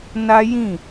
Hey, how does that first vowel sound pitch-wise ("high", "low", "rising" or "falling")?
high